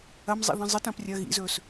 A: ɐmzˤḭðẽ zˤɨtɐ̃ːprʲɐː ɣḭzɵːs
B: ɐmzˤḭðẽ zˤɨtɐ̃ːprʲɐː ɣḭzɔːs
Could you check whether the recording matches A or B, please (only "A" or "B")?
A